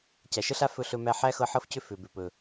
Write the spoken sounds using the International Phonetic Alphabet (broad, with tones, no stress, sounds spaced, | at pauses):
c æ˨ ʃ ə˦ ɬ a˦ f ɵ˧ ɬ ɵ˧ m æ˧ ħ æ˦ x ɤ˧ ħ ɤ˦ f c ʏ˦ f ʏ˨ b ʏ˨ p ɵ˨